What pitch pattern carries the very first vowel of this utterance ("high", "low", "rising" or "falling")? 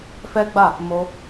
high